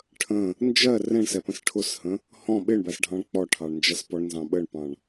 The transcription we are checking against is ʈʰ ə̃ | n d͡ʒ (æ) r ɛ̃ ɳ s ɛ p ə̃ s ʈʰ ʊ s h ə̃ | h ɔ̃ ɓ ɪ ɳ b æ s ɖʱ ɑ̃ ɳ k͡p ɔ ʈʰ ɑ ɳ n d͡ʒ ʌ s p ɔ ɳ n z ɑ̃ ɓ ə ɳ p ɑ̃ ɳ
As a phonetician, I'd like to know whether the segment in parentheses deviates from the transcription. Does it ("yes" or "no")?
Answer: yes